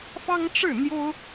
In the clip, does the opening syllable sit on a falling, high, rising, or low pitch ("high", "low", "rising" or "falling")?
high